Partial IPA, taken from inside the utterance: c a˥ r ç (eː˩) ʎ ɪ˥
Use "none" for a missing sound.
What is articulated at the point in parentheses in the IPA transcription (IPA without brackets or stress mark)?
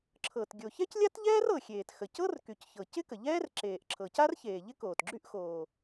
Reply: eː˩